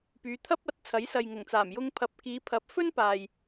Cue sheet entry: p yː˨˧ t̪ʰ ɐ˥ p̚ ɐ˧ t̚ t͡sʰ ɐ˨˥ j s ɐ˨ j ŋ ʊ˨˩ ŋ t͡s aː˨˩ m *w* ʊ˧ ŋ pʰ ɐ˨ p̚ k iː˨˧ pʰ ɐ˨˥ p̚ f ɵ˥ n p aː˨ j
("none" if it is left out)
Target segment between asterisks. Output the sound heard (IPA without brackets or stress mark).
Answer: j